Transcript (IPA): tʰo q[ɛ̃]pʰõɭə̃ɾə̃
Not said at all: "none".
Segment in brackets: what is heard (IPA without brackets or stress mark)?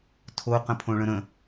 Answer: ə̃